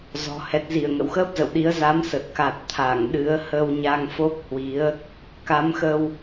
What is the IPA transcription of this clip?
zɔ̤˨˩ hɛ˨˩t̚zi˧˩ə̯ ŋə̰˧˨wxəː˦˥p̚zə̰˧˨wɗi˨˦ə̯ za˨˦msə˨˩t̚ ka˨˩t̚ t̪ʰa˧˩ŋ ɗɨ˨˦ə̯hə˧wɲa˧ŋfo˦˥k̚ hwi˨˦ə̯ | ka˨˦mxə˧w

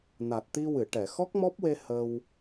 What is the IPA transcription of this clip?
na˨˩t̚t̪i˧wɨ˨˩˨ʈɛ˨˩˨ xɔ˦˥k̚mɔ˦˥p̚we˧ hə˧w

